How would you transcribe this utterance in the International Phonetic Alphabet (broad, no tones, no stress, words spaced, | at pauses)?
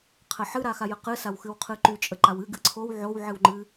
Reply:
qʰəħɨ ɾaxajəqɨ sawxɨwqʰɨǃy t͡ʃʼəǃawɨ ɡɨǀʰow ʕow ʕɨwŋ͡ǃɨ